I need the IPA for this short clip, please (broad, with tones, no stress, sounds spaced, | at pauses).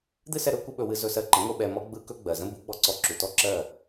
d̪ ɨ˦ s ɛ˧ ɾ ɵ˦ kʷ ə˦ ɓ ɵ˧ w ɨ˧ z ɵ˧ s ɜ˧ ǃ ə̃˨˦ ŋʷ ɯ˧ ɓ ɛ˧ m ɔ˦ ɡ͡b ɯ˦ k ɵ˦ ɡ͡b ɜ˨ z ə̃˦ b u˨˦ ɡ͡b ɔ˦ ǀ ɔ˦˨ ǁ u˨ t ɔ˦ ǁ ɜ˦˨